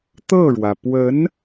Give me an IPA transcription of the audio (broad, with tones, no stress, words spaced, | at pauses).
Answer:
t̪ɤ˥˩ɻwä˩ pwə˧˥n